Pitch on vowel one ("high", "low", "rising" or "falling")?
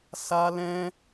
high